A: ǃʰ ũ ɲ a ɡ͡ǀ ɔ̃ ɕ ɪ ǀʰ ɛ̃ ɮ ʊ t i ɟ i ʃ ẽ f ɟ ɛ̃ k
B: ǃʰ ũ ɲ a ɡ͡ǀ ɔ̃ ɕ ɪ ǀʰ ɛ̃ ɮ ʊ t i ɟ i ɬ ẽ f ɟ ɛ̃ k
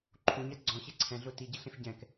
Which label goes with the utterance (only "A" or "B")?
B